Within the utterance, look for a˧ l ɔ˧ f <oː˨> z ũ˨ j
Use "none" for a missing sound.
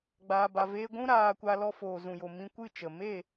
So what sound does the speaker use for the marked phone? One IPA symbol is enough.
oː˨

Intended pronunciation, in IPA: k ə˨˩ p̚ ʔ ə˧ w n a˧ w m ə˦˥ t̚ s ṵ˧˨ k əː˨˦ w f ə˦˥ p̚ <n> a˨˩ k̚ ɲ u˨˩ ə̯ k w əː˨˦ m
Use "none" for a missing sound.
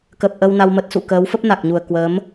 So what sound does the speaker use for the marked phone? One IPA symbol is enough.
n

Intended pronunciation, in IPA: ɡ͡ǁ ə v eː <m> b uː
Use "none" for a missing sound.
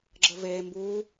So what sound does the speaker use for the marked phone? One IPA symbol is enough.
m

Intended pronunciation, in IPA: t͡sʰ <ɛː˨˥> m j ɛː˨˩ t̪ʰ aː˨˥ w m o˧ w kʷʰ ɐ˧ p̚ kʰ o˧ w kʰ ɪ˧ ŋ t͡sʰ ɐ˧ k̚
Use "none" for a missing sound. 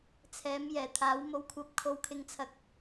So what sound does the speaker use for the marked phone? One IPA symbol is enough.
ɛː˨˥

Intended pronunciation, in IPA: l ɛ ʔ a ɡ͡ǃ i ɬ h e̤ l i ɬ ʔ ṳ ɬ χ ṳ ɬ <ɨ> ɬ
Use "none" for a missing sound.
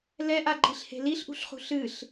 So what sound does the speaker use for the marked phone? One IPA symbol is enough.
ɨ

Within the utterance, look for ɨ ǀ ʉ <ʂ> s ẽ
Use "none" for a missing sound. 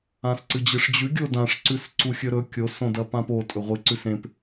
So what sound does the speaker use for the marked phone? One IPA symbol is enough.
none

